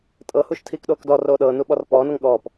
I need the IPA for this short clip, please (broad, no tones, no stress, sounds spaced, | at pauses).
tʼ ɤ h u ʃ tʰ iː k ɗ oː k d ɔ r oː ɗ ɤː n u ɓ ɔ r p ɔː n ɤ ŋ ɠ ɔː p